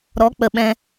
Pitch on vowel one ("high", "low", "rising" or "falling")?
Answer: rising